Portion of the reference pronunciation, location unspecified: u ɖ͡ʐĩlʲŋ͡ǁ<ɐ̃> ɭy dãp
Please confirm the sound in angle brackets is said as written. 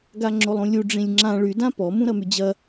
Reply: no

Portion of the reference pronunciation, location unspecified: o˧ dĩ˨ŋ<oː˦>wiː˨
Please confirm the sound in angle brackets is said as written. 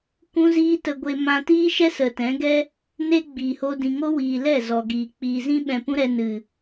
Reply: no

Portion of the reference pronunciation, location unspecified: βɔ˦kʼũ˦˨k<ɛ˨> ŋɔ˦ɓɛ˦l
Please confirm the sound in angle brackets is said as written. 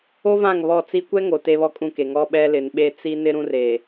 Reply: no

